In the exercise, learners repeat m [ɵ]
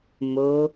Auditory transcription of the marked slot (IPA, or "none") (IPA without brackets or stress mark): o